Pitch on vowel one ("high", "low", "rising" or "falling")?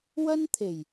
high